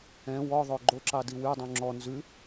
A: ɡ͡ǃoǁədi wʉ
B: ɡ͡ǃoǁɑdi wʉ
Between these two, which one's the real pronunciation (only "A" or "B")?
B